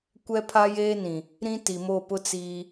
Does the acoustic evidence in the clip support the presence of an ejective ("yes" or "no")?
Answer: no